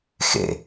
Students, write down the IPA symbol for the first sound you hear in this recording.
x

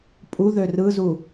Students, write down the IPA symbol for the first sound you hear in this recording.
pʼ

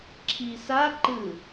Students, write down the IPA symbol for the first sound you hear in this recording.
ǁʰ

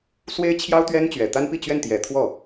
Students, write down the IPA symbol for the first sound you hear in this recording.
s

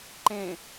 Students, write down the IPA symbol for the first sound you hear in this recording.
ǃ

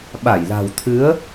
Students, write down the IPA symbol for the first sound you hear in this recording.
ɓ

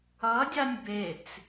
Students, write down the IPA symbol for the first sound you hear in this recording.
ʌ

